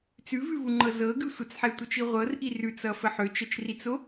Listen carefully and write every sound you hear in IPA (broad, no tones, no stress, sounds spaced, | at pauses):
t͡s ʉ v ʉ v u ŋ͡ǃ ɤ z ɤ ɡ ʉ sʷ ə t͡s ħ ɛ tʷ ɤ t͡ʃ i ʁʷ ɤ r ʔ i r ʉ t͡s ʌ f ə ħ ø t͡ʃ ə t͡ʃ r i t͡s o